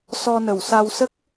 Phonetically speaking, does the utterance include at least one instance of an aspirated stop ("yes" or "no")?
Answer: no